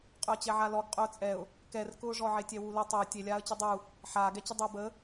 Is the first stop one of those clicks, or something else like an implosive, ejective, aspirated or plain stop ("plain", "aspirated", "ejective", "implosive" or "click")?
ejective